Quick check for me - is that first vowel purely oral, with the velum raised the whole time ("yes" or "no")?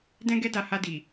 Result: no